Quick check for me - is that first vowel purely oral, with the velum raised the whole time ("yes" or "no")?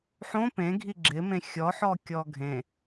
no